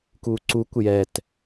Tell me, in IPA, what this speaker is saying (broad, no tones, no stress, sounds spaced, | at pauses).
k u ǀ u kʷ j ɛ t